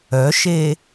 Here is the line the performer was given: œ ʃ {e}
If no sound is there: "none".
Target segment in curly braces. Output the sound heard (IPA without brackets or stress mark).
e